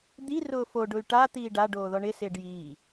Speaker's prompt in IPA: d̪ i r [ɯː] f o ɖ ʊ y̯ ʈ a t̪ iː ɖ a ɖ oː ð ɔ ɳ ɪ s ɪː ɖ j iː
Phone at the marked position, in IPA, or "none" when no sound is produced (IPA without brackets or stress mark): ʊː